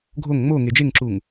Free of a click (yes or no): no